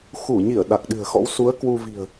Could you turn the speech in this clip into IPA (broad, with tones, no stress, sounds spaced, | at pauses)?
x u˧˩ ɲ i˧˩ ə̯ ɗ a˨˩ k̚ ɗ ɨ̤˨˩ ə̯ x ɔ̰˧˥ w s u˨˦ ə̯ k w u˧ v i̤˨˩ ə̯